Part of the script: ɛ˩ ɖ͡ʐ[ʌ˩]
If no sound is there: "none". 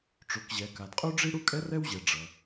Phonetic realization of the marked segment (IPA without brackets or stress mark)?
ʌ˩